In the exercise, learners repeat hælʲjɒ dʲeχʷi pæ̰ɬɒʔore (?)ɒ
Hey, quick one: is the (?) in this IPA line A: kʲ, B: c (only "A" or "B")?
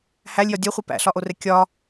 A